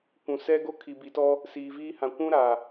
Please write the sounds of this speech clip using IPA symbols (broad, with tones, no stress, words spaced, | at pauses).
kʷũ˨sɛ˦ɡo˦ kʰi˨bi˨tɔ˦ | siː˨viː˦hã˨ kʷũ˦ɾa˨